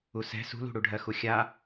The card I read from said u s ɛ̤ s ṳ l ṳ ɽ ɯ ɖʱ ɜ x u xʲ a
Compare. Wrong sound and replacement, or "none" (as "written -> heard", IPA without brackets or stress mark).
ɯ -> u